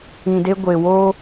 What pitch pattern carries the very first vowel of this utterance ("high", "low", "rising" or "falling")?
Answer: low